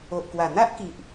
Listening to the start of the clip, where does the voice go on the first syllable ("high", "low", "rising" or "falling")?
low